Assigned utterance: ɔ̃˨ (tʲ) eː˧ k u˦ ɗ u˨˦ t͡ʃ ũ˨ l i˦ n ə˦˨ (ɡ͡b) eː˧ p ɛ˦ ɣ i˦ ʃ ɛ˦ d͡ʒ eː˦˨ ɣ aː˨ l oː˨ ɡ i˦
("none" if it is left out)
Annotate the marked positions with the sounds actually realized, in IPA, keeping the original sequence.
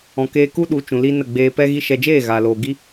k, ɡ͡b

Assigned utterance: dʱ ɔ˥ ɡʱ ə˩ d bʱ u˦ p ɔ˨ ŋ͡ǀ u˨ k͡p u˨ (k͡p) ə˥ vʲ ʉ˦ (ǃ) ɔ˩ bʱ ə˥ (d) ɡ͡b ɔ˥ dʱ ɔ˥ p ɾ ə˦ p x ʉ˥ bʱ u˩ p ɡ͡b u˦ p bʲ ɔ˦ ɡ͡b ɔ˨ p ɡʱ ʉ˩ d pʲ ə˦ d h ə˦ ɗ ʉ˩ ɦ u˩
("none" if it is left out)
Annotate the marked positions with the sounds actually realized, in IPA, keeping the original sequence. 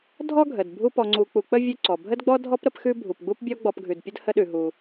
k͡p, ǀ, d

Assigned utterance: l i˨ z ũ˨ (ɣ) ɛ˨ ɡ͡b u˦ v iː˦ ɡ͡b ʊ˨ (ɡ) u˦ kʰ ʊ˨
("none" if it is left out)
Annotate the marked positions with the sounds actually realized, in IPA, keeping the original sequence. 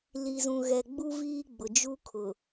ɣ, d͡ʒ

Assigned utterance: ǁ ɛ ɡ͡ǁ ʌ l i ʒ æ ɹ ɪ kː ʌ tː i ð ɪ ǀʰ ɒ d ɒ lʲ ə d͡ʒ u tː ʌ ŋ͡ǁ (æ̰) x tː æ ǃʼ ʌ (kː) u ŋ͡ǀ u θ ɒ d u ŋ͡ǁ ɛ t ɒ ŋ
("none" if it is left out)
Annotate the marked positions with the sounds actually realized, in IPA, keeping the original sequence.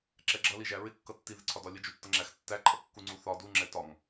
æ, kː

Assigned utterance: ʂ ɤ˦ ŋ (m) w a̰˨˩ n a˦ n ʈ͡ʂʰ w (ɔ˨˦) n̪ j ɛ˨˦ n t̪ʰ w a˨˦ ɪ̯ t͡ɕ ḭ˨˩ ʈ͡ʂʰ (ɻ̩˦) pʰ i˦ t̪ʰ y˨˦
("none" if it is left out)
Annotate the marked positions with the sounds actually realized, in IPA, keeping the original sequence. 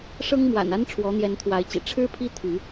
m, ɔ˨˦, ɻ̩˦

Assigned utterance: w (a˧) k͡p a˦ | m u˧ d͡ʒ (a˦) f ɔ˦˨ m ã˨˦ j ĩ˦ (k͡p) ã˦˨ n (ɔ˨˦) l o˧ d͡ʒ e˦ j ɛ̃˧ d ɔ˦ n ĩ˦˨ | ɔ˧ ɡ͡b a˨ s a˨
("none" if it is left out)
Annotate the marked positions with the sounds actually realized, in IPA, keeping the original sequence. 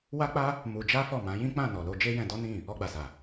a˦, a˦, k͡p, ɔ˨

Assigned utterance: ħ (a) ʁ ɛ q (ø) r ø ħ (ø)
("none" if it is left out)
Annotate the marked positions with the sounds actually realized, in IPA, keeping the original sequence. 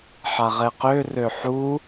a, ø, u

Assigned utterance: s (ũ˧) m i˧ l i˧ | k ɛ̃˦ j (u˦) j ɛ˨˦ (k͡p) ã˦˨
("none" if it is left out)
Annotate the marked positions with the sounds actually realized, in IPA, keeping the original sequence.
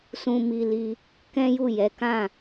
ũ˧, u˦˨, k

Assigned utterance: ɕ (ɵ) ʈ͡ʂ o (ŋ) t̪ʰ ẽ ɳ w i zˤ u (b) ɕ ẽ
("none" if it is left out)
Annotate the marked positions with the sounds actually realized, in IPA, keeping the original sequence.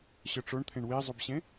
œ, ɳ, b

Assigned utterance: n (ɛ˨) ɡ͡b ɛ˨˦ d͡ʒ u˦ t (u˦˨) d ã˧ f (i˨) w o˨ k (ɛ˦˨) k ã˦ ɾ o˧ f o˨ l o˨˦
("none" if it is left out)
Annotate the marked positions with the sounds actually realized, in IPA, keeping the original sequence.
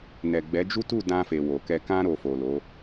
ɛ˨, u˦˨, e˨, ɛ˧

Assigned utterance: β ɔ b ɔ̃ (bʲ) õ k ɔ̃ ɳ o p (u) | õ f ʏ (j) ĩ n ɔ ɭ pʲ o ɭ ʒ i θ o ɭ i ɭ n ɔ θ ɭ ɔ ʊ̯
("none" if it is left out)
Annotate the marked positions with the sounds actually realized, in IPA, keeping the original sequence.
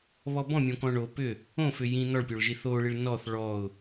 mʲ, ʏ, j

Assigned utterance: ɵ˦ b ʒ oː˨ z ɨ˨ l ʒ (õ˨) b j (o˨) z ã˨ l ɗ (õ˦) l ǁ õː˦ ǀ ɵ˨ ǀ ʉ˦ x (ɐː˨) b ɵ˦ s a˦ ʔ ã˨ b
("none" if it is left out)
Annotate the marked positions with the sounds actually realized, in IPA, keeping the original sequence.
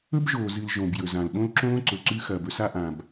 õ˨, ɵ˨, õ˦, ɐː˨

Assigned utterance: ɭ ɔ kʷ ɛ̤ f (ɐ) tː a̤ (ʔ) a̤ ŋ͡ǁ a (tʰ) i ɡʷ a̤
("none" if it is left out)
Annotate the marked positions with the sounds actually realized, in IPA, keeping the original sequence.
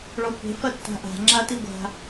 ɐ, ʔ, t

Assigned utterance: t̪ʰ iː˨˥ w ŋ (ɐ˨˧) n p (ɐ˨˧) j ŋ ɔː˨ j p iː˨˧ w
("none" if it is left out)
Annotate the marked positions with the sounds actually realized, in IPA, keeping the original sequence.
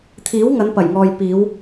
ɐ˨˧, ɐ˨˩

